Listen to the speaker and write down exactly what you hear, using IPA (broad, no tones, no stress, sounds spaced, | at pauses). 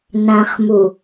n ã χ m u